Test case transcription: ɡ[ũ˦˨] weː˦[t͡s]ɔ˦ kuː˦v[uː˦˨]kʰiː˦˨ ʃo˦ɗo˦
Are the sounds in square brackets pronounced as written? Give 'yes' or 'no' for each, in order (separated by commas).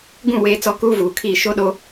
yes, yes, no